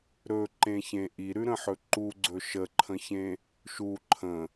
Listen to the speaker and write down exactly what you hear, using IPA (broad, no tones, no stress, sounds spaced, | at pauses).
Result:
ɾ ɵ ǃ ẽ ç ẽ ʔ i ɾ ʉ ɾ ə̃ ħ ɵ ǃ u ɡ͡ǀ ɵ ʃ ə ǃʰ ə̃ ç ẽ | ʃ u ǃʰ ə̃